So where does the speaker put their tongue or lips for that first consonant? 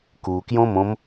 velum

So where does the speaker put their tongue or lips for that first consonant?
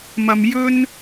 lips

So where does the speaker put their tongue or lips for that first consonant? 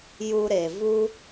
palate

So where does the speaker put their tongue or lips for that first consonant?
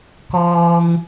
velum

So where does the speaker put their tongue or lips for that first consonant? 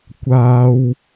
velum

